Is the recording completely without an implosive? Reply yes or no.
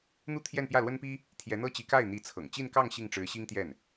yes